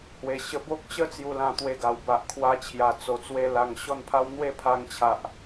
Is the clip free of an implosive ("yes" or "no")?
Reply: yes